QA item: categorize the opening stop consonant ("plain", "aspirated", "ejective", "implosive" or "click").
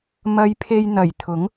aspirated